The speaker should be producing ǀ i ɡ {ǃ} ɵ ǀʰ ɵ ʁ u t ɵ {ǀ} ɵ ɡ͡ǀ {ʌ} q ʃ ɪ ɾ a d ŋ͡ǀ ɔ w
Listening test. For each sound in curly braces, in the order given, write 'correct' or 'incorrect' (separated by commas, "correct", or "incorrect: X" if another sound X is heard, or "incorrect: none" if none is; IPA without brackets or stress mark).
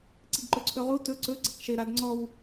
correct, correct, correct